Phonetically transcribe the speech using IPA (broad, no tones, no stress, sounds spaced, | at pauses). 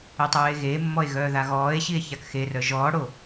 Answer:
y tˤ yː e̯ ɣ eː mː ɔ e̯ ɣ œː ð a ɣ ɔː e̯ ɕ i e̯ ç a k x e r œ ʒ ɔː ɽ o